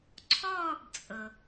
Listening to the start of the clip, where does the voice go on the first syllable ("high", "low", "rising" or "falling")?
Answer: falling